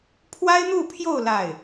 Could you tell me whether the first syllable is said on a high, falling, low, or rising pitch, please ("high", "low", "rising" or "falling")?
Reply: high